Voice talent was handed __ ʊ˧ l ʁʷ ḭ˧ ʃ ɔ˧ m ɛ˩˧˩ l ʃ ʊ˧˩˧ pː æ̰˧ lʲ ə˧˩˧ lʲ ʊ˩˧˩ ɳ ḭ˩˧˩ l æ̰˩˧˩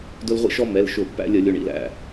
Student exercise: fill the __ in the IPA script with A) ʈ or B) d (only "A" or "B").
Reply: B